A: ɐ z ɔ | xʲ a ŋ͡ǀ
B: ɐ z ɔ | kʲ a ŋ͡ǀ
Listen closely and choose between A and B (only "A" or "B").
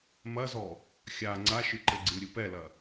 A